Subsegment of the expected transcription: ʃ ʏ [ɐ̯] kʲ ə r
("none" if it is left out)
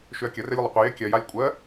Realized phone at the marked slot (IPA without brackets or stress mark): ɐ̯